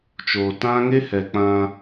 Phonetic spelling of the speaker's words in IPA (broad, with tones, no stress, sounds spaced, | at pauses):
t͡ʃ oː˨ t ã˦ ŋ e˦ h ɛ˨ k͡p ã˦